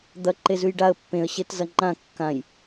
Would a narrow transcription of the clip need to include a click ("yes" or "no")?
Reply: yes